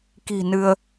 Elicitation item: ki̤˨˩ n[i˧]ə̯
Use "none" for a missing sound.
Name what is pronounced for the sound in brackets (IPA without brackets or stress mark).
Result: ɨ˧